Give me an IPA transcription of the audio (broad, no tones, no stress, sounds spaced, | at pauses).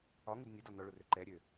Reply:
ɒ ŋ u d nʲ ɛ d ɒ n ɔ ɭ ʊ r ø ǃ ɛ ɾʲ ø